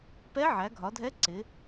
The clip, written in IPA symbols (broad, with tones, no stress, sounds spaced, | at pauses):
p ɛ˧˥ ʕ æ˩˧ ɡʱ ɒ˩˧ dʱ ɛ˧˥ ǀ ɪ˩˧